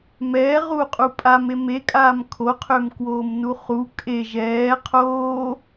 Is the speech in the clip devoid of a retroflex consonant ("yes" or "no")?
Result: yes